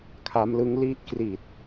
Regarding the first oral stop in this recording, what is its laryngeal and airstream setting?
aspirated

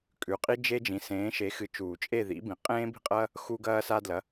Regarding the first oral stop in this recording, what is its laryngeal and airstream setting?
ejective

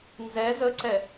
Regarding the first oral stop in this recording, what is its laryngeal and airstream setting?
click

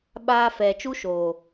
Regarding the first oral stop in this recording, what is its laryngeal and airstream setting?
implosive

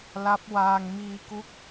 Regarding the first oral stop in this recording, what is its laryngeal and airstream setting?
plain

